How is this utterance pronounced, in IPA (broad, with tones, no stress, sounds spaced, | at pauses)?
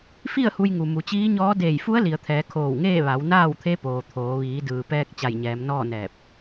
f i˥˨ ə̯ h u˧ j ŋ u˩ m u˩˧ t͡ɕ iː˧˥ ɲ ɔː˧˥ d eː˧˩ j f u˧˥ ə̯ l i˩ ə̯ t̪ʰ ɛː˩˧ kʰ oː˧˩ w ŋ eː˥˨ ʋ a˩˧ w n aː˥˨ w t̪ʰ e˧˥ p oː˩ t̪ʰ oː˩˧ ʋ iː˩˧ d ɯː˩ p ɛː˧ k̚ t͡ɕ a˧˩ j ɲ ɛː˩˧ m n ɔː˥˨ n ɛː˧˩ p̚